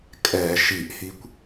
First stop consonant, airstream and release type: ejective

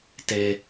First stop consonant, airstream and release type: plain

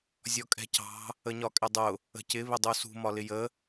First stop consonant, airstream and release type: ejective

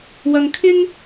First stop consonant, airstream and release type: aspirated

